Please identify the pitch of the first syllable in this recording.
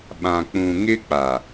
low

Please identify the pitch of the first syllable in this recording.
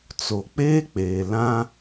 low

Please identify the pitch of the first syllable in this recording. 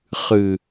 low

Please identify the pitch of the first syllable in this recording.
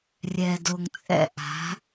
low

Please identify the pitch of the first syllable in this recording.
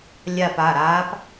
falling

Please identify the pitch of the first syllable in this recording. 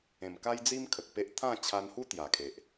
low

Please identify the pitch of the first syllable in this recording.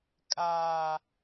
high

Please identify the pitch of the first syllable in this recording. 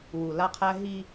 low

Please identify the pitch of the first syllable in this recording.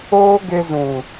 high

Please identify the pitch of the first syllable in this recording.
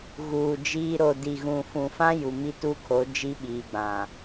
low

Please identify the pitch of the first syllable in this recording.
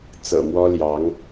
low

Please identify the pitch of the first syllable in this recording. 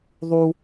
high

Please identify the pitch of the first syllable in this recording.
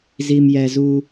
low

